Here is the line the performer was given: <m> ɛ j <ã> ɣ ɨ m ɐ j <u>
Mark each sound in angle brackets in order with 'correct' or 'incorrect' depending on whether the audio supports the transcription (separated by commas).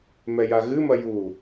correct, incorrect, correct